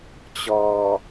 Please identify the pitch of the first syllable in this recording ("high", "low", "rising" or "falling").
low